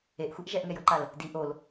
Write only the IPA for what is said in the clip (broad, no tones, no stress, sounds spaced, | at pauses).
e ʔ xʷ ɛ ʔ ʒ ɛ ʔ ŋ ɛ j ɤ ǃ a l | d i ʔ o l